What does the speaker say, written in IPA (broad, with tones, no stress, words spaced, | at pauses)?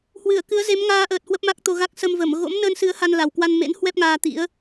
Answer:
hwɨ˧˩ə̯kɨ˨˦ə̯ ze˨˦mŋaː˧ʔəː˨˩t̚ hwə˦˥p̚ma˦˥k̚t̪o˧ɣa˦˥k̚ sə˧mvə˧˩m ɣo̰˧˥mnəː˧nsɨ˨˦ə̯ ha˧nla˨˩wkwa˧nmḛ˧˥n hwɛ˦˥p̚ŋaː˧t̪ḭ˧˥ə̯